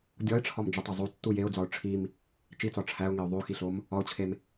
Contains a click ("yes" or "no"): no